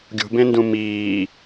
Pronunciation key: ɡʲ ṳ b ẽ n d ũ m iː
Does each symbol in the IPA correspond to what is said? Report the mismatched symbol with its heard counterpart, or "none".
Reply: none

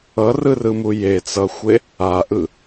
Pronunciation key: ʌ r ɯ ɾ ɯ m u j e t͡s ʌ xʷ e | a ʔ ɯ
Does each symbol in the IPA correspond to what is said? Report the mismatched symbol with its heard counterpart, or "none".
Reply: ɾ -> r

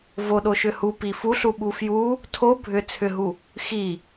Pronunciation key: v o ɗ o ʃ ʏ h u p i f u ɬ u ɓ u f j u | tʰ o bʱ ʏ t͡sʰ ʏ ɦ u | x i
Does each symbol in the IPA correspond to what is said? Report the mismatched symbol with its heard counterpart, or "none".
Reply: none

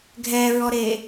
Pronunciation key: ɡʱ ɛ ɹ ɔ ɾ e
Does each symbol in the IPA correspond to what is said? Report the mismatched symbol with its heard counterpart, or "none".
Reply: none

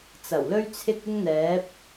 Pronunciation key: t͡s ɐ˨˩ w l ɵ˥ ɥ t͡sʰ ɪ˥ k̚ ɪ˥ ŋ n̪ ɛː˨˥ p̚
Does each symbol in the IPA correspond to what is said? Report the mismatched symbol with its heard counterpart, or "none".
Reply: none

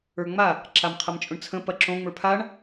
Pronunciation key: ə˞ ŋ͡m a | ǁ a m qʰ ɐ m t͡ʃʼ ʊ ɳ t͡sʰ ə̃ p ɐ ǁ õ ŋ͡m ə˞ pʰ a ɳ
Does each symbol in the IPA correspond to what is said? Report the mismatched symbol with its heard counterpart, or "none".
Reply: none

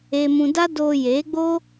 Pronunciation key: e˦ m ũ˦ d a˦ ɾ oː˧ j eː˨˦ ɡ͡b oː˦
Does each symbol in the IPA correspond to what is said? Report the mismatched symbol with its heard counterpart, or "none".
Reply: ɾ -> d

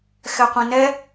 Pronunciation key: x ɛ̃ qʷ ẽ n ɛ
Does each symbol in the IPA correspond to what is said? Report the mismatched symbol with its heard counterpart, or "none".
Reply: ɛ̃ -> ɛ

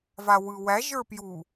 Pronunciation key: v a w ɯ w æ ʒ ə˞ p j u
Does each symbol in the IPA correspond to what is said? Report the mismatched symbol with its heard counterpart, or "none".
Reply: none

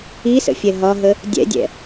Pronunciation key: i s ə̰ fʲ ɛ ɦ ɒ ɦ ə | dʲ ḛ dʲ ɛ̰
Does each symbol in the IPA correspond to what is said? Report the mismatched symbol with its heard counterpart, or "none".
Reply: ḛ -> ɛ̰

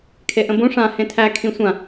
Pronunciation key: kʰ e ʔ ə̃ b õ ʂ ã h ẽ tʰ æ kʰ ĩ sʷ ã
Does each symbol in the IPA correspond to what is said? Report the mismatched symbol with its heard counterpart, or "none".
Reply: none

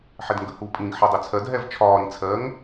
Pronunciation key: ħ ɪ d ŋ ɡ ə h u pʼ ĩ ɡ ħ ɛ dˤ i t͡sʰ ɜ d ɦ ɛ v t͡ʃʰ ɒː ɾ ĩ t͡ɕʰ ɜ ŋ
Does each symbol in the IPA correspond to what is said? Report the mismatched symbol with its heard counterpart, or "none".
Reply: t͡ɕʰ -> t͡sʰ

